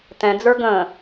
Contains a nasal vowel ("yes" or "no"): yes